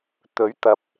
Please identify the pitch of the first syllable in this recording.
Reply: rising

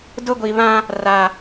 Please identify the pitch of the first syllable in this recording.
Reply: high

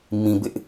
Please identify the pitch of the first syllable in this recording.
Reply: low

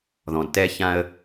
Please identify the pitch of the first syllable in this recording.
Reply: low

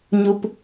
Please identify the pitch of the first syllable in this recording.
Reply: low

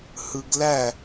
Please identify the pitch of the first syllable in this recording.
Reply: low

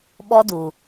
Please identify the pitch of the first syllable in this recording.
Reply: high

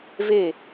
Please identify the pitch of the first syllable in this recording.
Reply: falling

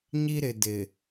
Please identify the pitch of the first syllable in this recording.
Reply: high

